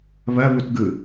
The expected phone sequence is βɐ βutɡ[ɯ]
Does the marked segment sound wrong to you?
no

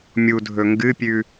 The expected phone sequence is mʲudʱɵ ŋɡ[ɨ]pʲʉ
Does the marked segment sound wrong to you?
no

